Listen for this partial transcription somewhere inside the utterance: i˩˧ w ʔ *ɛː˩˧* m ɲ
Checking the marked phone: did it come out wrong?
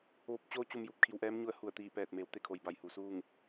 yes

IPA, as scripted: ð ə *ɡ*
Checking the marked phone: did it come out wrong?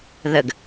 no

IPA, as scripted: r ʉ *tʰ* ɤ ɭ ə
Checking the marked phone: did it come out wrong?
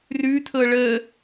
no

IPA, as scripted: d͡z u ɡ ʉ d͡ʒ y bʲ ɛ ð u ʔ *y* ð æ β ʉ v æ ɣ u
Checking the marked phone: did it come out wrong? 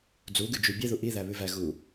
yes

